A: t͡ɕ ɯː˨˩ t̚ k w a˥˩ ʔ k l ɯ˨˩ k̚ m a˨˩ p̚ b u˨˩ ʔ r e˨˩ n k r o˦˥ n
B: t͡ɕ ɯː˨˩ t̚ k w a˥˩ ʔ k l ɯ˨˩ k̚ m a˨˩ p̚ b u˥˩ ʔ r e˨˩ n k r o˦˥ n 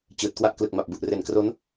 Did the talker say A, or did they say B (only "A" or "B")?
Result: A